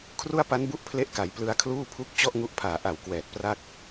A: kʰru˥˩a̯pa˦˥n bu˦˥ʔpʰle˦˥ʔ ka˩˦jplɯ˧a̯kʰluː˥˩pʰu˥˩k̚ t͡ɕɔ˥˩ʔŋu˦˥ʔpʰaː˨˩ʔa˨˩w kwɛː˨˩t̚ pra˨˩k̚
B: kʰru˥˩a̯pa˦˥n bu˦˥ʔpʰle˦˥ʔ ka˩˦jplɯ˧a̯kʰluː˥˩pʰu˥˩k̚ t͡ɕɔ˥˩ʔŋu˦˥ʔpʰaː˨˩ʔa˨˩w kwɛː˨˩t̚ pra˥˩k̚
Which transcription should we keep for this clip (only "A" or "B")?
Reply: B